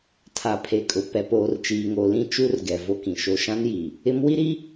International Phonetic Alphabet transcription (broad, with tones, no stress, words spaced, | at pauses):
tʰa˨pʰe˨kʼʊ˨ pɛ˨poː˨rt͡ʃiː˨ŋo˨ lĩ˦t͡ʃu˦rɡɛ˨ vo˦kĩ˨ʃo˦ ʃã˦nji˨ | ɪ˦m wi˦ɾi˦